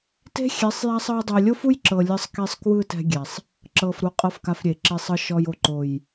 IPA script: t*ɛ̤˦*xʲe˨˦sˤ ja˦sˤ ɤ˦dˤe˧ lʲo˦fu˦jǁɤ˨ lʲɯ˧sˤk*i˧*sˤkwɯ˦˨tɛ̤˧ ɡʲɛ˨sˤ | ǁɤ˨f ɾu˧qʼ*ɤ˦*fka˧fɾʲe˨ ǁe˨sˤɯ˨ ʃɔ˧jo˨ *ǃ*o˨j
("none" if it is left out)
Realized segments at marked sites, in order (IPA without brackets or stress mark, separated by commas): e̤˦, i˧, ɤ˦, ǃ